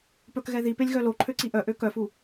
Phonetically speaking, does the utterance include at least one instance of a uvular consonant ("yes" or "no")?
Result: no